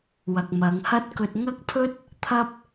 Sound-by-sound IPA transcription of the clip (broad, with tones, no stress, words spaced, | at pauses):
wɐ˨k̚mɐ˨˧ŋ hɐ˥t̚kɵ˧t̚ ŋɐ˥k̚pʰɵ˥t̚ | t̪ʰɐ˥p̚